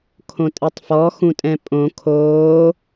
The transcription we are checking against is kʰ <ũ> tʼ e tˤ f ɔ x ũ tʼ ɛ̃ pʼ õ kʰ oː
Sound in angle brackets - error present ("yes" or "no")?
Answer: yes